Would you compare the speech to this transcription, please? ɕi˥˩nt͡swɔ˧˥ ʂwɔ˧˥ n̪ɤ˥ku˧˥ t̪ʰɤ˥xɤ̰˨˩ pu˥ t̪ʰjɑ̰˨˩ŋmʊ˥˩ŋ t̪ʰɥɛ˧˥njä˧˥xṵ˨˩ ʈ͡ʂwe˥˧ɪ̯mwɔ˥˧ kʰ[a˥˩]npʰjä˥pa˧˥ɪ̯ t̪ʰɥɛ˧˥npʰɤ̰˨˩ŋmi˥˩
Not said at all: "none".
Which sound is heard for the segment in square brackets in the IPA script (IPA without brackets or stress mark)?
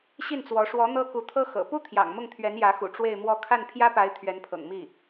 a˥˩